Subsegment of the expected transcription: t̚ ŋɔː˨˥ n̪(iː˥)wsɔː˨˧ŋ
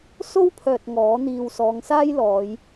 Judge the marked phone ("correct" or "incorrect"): incorrect